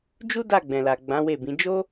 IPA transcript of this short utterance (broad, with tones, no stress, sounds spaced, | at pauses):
d͡ʒ u˦ d a˦˨ ɡ͡b ɛ̃˨ l a˨ ɡ͡b ã˨˦ w e˦˨ b ĩ˨˦ d͡ʒ o˦